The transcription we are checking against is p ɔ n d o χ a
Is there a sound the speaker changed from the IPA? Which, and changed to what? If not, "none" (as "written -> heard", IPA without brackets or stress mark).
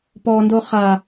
none